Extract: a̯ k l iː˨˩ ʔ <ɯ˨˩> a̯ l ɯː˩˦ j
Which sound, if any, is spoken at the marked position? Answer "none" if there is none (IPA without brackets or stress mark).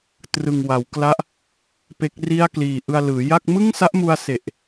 ɯ˧